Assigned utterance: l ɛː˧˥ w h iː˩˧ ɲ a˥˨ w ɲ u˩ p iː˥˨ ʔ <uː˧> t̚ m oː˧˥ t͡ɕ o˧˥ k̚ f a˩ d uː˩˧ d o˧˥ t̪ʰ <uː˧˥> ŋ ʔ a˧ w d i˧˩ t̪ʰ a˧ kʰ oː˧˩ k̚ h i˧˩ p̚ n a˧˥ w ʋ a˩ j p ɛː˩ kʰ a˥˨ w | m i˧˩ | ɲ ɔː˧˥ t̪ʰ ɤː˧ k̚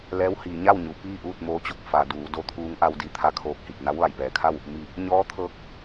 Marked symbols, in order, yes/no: no, yes

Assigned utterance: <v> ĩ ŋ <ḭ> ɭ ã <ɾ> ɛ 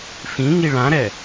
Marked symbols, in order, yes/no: no, no, yes

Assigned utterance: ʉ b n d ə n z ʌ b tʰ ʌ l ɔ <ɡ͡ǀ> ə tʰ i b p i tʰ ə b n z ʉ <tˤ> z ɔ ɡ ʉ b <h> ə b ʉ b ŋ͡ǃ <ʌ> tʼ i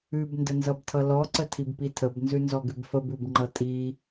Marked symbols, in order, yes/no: no, no, no, yes

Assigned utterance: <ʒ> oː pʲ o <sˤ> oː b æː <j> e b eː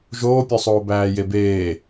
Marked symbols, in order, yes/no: yes, yes, yes

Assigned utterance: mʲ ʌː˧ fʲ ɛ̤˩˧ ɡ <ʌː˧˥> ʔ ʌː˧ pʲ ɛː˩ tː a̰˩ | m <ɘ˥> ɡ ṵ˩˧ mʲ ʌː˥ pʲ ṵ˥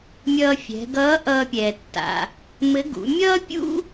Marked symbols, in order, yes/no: yes, no

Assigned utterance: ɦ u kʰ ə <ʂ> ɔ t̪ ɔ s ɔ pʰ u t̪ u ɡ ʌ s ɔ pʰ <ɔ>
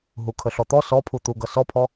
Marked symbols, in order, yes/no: no, yes

